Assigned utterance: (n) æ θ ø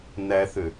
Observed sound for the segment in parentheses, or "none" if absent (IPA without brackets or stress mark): n